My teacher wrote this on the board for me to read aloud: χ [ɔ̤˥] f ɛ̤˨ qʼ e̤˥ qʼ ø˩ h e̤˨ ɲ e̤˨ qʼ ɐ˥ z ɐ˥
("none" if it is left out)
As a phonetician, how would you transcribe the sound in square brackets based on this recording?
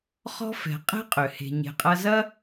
ɔ̤˥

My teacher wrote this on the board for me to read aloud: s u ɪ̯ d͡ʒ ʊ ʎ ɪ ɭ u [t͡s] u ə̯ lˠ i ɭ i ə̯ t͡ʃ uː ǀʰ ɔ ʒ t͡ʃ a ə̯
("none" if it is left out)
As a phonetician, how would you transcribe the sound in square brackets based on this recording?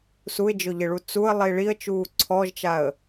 t͡s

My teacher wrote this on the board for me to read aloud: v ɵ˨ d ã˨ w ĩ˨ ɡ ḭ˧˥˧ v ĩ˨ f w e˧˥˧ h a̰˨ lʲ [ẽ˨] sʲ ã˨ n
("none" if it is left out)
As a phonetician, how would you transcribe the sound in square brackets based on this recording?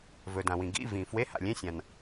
ẽ˧˥˧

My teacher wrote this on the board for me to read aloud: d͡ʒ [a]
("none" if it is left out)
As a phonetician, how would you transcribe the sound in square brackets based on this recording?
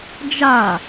a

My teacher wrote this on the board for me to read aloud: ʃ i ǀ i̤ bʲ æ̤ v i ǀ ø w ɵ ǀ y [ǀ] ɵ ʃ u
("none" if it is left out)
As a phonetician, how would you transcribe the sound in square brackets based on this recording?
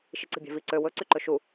ǃ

